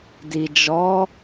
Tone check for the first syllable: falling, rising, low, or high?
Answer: low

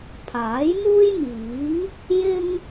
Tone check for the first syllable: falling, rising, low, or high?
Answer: rising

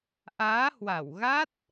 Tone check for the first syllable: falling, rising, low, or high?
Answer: rising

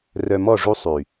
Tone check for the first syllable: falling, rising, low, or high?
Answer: low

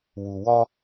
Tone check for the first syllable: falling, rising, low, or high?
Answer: low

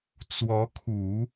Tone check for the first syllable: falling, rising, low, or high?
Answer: rising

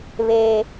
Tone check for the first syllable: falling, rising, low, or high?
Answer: high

